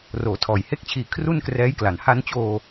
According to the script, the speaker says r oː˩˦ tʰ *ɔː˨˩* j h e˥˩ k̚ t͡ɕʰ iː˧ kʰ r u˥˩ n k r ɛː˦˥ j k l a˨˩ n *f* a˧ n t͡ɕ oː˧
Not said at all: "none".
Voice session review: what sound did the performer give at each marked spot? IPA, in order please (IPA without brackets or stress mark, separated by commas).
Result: ɔː˨˩, h